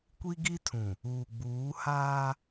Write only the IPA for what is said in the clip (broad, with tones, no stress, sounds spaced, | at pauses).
kʷ i˦ ɡ i˦ tʰ ũ˨ | uː˨ ɡ͡b uː˨˦ h aː˦